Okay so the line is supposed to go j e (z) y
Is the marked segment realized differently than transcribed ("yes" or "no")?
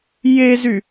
no